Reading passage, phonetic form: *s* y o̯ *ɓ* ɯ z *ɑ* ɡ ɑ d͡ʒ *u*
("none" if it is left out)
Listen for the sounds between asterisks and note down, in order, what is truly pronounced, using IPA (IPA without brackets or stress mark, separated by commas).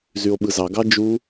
z, ɓ, ɑ, u